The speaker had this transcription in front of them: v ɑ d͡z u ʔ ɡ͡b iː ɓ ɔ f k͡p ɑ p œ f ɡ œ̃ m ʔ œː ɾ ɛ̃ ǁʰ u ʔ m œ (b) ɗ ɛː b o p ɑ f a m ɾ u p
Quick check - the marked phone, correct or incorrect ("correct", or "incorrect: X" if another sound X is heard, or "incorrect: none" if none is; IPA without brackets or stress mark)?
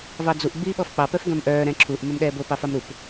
incorrect: m